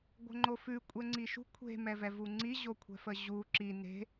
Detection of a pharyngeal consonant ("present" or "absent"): absent